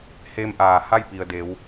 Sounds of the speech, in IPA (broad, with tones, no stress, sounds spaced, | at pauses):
h e˧ m ʔ aː˩ h a˥˨ j p i˩ ə̯ d e˩˧ w